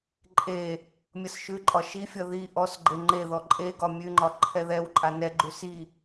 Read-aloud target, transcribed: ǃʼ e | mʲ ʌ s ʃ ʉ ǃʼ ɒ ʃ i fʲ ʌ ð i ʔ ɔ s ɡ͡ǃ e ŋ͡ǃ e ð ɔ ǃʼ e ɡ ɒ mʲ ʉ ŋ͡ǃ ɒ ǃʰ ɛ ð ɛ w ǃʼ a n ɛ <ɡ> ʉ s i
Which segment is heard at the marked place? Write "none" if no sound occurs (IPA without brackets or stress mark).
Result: ɡ͡ǃ